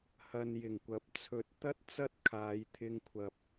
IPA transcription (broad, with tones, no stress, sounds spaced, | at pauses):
h ɐ˨ n j ɪ˨˩ ŋ kʷ ɐ˨˥ p̚ t͡sʰ ɵ˨˥ t̚ t̪ ɐ˥ t̚ t͡s ɐ˥ t̚ kʰ aː˨˧ j t̪ʰ ɪ˧ ŋ kʷʰ ɐ˨ p̚